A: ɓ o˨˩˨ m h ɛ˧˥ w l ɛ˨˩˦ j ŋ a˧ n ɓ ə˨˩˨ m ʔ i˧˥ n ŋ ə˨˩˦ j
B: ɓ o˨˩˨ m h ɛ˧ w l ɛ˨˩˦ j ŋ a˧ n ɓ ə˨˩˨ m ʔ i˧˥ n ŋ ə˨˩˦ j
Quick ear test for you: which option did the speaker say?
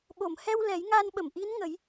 B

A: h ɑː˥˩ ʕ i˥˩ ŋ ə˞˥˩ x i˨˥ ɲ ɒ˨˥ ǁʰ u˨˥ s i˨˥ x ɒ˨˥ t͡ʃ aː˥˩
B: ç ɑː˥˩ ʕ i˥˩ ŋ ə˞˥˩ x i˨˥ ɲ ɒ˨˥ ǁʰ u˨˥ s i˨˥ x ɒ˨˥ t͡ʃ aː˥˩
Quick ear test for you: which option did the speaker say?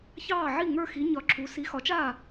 B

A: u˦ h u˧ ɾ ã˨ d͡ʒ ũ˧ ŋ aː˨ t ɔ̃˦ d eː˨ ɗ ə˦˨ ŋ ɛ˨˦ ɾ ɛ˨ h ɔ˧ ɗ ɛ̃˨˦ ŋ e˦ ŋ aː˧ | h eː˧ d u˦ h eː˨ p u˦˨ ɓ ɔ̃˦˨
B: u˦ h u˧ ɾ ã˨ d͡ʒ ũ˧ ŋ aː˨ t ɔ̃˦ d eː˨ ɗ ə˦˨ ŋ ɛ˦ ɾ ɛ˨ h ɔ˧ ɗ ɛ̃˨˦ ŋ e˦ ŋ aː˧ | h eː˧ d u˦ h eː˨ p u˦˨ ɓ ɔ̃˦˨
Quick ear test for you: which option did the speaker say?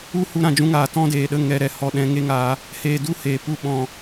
A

